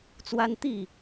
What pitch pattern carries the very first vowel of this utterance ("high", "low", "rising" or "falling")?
high